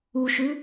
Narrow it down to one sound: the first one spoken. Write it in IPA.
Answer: u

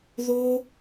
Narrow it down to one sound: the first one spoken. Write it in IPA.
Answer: ð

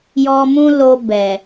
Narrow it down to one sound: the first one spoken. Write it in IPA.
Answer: j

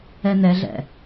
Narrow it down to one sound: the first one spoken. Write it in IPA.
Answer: ɛ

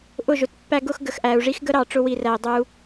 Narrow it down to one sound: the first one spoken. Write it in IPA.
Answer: ʔ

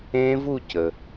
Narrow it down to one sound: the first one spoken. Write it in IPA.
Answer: ẽ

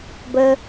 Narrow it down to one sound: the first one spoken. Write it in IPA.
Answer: b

